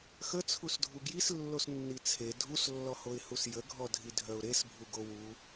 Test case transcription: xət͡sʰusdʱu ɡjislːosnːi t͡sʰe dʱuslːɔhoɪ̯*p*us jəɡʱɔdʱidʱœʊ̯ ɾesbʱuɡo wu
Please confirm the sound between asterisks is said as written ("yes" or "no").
no